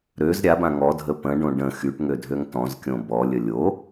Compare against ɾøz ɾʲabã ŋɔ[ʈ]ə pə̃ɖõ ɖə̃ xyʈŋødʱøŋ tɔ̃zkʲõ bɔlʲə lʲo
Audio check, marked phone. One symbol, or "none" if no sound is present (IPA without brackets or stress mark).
dʱ